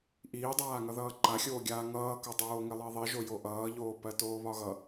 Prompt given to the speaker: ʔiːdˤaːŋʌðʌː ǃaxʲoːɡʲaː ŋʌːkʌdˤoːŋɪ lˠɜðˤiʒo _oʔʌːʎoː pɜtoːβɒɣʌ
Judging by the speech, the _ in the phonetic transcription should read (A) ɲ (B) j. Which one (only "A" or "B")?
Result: B